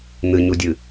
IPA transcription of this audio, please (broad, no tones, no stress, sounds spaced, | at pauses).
n̪ ɨ ɲ u dʲ ɨ